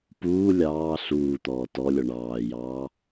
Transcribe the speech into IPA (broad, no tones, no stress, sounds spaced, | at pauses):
p uː lʲ ɑː ɬ uː t̪ ɔː t ɔ lʲ ɔ ɳ ɑː j ɑː